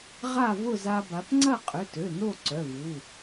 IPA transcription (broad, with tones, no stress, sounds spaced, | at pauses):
ʁ a˥˨ v ʊ˥˨ z a˧ b a˩˧ p ŋ͡ǀ ɐ˥˨ qʼ ø˩˧˩ t ø˩˧˩ n o˥˨ ǀ œ˩˧˩ v u˩˧˩